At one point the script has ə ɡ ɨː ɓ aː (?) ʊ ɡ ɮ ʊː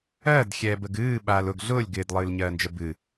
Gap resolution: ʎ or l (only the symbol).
l